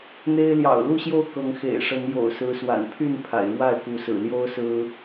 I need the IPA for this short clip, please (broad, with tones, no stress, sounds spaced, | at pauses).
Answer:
n̪ e˦ ɪ̯ l j ɑ̰˨˩ ʊ̯ l u˥˨ ɕ j o˥˨ ʊ̯ k ɤ˨˦ ŋ x ḛ˨˩ ɪ̯ ʂ ə˨˦ n j o̰˨˩ ʊ̯ s ɹ̩˨˦ s w a̰˨˩ n pʰ y˥˨ n pʰ a̰˨˩ ɪ̯ ɻ w a˥˨ ɪ̯ k u˨˦ s ɹ̩˨˩ l j o˦ ʊ̯ s ɹ̩˦